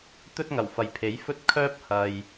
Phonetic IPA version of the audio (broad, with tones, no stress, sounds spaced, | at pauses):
t̪ ɵ˥ t̚ ŋ ɐ˨˩ w f ɐ˨ j pʰ e˨˥ j f ɵ˥ t̚ kʰ œː˥ p̚ h ɐ˨ j